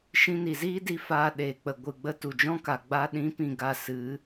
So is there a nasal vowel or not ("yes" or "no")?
yes